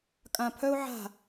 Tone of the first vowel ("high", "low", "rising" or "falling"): low